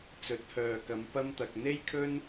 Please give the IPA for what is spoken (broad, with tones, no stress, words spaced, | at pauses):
t͡sɵ˨˥t̚hœː˨kɐ˨˧m pɐ˥mt̪ɐ˧k̚ n̪e˥jkʰɵ˥n